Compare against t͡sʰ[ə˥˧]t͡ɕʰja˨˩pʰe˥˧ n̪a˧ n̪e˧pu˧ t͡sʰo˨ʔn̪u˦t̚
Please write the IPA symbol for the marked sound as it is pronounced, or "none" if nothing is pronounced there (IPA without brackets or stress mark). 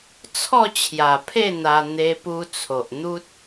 ɔ˥˧